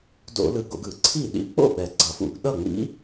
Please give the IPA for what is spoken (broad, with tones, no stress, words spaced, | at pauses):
do̰˧˩˧lɯ˨˩ɡo̰˧˩˧ɡɯ˧˩˧ ǀʰi˥˩ ɗḭ˧˥k͡po̰˥˩ ɓɛ˨˩ɡ͡ǀʌ˧˩˧fṵ˧˩˧ɡ ɗʌ˥˩ŋ͡mḭ˧˥